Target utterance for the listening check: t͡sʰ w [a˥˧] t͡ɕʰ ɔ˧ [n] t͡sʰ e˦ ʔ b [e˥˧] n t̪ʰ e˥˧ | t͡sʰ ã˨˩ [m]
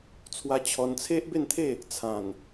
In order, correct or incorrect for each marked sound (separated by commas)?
incorrect, correct, correct, incorrect